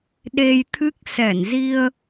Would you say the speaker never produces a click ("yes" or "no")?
yes